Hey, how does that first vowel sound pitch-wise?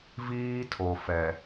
high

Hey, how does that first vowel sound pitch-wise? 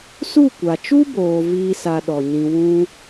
falling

